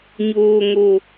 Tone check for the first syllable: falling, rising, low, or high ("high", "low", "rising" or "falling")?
low